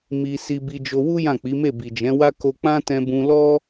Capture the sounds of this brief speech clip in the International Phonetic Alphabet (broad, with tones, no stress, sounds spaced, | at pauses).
m i˧ s i˧ b i˧ d͡ʒ o˧ w u˦ j ã˦˨ k͡p i˨˦ m e˦˨ b i˨ d͡ʒ ɛ̃˨˦ w a˦ k o˧ k͡p ã˦ t ɛ̃˧ b ũ˧ l ɔ˦